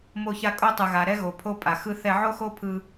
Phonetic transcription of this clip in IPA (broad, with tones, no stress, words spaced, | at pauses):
mo˧ça˧ kʼo˧tˤɯ˩ɣa˩ ɾɛ˧ɣo˩ pʰo˧pʼa˩xɯ˧ θɛ˧ʕo˥xo˥ pʰɯ˧